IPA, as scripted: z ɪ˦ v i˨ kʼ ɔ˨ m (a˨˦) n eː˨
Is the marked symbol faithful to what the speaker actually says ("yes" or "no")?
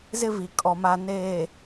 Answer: no